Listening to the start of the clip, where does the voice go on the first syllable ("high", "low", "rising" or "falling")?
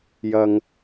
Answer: low